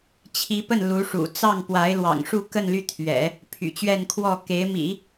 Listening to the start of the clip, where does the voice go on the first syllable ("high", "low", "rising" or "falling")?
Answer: rising